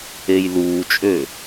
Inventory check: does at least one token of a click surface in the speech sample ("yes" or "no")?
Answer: no